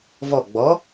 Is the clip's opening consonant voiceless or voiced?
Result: voiced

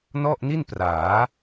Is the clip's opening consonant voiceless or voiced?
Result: voiced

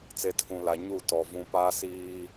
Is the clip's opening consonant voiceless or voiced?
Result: voiceless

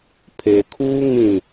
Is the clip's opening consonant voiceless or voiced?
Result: voiceless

